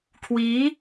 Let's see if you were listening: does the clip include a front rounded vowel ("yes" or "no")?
no